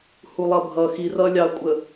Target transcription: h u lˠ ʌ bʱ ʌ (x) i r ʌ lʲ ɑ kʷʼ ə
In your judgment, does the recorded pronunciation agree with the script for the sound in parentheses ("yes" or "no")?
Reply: yes